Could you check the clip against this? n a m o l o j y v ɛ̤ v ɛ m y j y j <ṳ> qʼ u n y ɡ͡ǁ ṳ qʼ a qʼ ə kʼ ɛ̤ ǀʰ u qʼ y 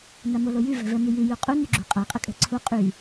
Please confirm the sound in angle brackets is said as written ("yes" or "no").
no